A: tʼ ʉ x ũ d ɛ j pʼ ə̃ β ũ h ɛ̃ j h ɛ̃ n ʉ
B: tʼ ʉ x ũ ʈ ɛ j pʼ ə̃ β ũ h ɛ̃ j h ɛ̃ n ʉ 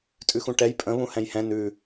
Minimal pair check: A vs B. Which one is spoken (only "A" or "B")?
B